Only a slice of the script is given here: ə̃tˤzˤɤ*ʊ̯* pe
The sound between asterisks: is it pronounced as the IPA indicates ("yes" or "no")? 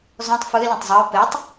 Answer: yes